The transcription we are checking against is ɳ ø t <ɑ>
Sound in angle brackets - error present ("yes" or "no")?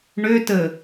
yes